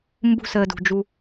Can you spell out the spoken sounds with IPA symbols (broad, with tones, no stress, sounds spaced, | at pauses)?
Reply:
m b ṳ˧ s əː˨ d ṳ˨ d͡ʒ u˧